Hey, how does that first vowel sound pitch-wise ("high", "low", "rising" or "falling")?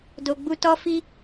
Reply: low